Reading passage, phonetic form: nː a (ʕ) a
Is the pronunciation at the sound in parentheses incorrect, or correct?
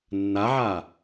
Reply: correct